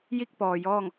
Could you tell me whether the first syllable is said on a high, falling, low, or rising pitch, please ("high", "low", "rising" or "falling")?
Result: falling